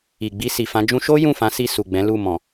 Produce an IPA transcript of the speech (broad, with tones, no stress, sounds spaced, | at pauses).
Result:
i˨ ɡ͡b i˧ s i˨ f ã˨˦ d͡ʒ ũ˧ ʃ o˦ j ũ˦˨ f ã˨˦ s i˧ s u˨ ɡ͡b ɛ̃˨˦ l u˦˨ m ɔ̃˨